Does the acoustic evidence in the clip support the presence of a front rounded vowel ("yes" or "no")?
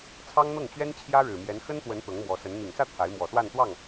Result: no